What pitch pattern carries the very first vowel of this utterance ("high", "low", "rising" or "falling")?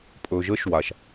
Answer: low